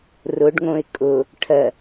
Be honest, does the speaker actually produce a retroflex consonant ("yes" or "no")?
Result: yes